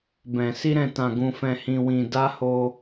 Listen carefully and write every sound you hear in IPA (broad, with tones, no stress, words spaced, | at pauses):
bɛ̃˨ si˧ɾɛ̃˨tã˨ ɡũ˨fɛ̃˨hĩ˨wĩ˨ da˧ ho˧